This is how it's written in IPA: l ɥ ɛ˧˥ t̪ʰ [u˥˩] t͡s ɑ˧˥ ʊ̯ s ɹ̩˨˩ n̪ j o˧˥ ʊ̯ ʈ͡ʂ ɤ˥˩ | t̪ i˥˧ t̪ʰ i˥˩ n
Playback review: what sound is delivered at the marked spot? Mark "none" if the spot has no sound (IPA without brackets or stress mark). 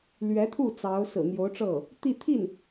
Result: u˥˩